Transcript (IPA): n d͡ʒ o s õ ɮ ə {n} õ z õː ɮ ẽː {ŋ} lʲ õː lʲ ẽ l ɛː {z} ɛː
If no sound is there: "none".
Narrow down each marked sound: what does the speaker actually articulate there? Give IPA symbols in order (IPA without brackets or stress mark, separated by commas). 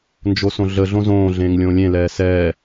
ɮ, ŋ, s